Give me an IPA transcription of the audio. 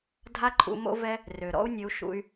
dʱa˦ǃʰṵ˧mo̰˦vɛ˦ | rø˨ ɾɔ̰˦u̯nʲɘ˧u̯ ʃṵ˦y̯

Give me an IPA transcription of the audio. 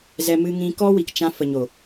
zɛ˧mɨ˧ŋĩ˧ kɔ˦wi˨kt͡ʃã˧ fə˨ɲo˨

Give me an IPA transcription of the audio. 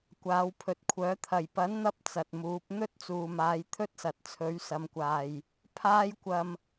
kʷaː˨˧wpʰɵ˨t̚kʷʰœː˨˥t̪ʰɐ˨j pɐ˨˥nn̪ɐ˧p̚ t͡sɐ˨t̚muː˨˥p̚ n̪ɵ˥t̚t͡suː˨maː˨˧j t̪ʰɵ˥t̚sɐ˨t̚ t͡sʰɵ˨˥ɥsɐ˨˧mkʷaː˨j | pʰaː˥jkʷɐ˧m

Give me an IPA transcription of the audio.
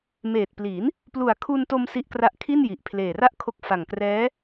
meː˨˩t̚pli˩˦n | plu˨˩a̯kʰu˧nto˧m si˦˥ʔkra˦˥ʔ kʰi˥˩nji˨˩ʔ pʰleː˨˩ra˥˩ʔkʰo˦˥k̚ fa˨˩ŋkrɛː˦˥

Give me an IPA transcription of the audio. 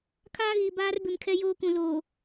kʰaː˦ɣiː˨ baː˦r bɪ˨mkʰɛ˦joː˦kũ˨ loː˨

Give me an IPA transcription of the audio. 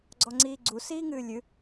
ɡ͡ǀɔŋ͡ǀiːɡ͡ǀu siːŋɨːlʲɨ

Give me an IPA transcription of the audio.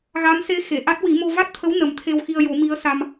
ɣa˧˥mse˧˥ xe˨˩˨ʔa˦˥t̚wi˨˩˦mo˧ va˦˥t̚t̪ʰə˧˥w nə˨˩˦mt̪ʰe˧wxi˧ə̯jo˨˩˦ mi˧˥ə̯ sa˧m

